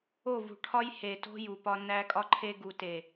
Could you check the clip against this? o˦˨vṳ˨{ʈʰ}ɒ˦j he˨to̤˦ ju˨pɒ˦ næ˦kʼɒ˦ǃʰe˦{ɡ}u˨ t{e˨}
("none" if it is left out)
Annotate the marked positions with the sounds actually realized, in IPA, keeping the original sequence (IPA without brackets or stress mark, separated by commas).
ʈʰ, ɡ, e˨